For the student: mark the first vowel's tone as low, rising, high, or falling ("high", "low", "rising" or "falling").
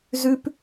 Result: high